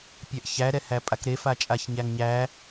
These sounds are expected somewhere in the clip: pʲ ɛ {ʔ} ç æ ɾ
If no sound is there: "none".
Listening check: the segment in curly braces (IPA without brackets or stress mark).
ʔ